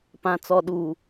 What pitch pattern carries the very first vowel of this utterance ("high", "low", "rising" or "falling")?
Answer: low